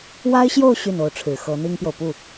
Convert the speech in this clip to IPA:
wa˥ɪ̯ɕjo˥˧ʊ̯ ɕy˥˩no˧˥ʊ̯ʈ͡ʂʰɻ̩˨˩ xɤ˧˥n̪i˥ŋpjo˨ʊ̯ pu˥˩

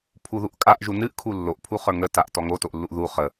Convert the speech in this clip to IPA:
pʰuðuʔkʼaʔʒu nɨʔkʰu lːoʔpʰuχə˞ ŋətaʔ tɔŋotoʔlːuʔ ðu χə

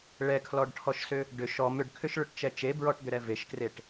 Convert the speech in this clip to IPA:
ɭɛkʰlɔɖʈʰɔʃsʏ | ɖʏ ʃɔm ʏɖkʰʏʃɭʏʈt͡ʃɛ t͡ʃebɹɔʈd̪ʏɾɛ veʃkreʈ

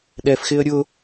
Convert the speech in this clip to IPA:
ɗɛfxɪə̯ ɾʲʊ

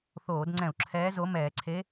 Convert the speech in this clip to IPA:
θoː˧˩˧dŋ͡ǀɛ̃˧˩˧u̯ǁʰɛː˧˥ zo˧˥mɛː˧˩˧ǀʰe˧˥

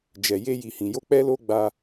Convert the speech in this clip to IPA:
d͡ʒɛ˨ je˧ji˨hĩ˨jo˧ k͡pɛ˧ lo˦ɡ͡ba˧

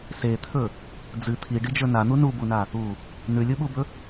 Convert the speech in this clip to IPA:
set̪ʰɵ | d͡zɨ t̪ʰiɖid͡ʒɵ nan̪u nubuna | u | nʉlʲuɓubɵ

